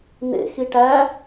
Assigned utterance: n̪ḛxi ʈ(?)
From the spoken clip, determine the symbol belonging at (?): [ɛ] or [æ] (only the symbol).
æ